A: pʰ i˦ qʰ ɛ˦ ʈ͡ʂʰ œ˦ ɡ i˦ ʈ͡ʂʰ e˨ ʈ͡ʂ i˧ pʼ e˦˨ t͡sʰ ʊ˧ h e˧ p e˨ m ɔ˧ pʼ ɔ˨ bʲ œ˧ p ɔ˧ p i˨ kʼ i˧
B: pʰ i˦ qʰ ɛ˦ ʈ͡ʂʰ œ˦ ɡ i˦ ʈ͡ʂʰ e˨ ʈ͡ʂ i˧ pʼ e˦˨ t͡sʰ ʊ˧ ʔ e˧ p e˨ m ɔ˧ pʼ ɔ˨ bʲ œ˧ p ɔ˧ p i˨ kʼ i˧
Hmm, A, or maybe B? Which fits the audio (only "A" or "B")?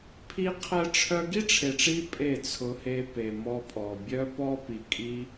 A